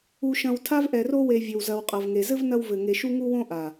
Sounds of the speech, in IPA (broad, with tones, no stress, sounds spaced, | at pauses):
u˨ ʃ ɐ̃˨ w tʰ a˦ v ʔ ɛ˨ r o˦ w e˨ vʲ ɘ˨ w z ɐ˨ w qʼ ɐ˨ v ŋ e˨ z ɘ˦ v n ɐ˦ w v ɘ˨ ŋ e˨ ʃ u˦ ŋ u˦ w õ˦ ʔ a˨